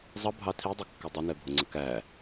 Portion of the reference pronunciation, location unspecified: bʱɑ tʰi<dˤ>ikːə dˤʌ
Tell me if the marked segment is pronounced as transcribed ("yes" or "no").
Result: yes